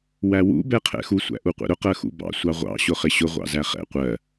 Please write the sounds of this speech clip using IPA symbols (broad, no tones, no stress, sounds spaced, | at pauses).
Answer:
w æ w ṵ b ɛ qʰ ɛ̰ x u sʷ æ̰ ʔ u qʷ ɛ̰ ɾ ʊ q ɜ x ṵ b ɑ̰ sʷ ɑ ʁʷ ɑ̰ ɕ ʊ χ ɪ ɕ ʊ ʁʷ ɑ̰ z æ χ ɛ̰ qʷ ɜ